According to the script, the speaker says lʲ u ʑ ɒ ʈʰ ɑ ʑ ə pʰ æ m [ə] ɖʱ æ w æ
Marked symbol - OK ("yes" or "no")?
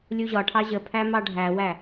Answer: no